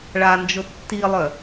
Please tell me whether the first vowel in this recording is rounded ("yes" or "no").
no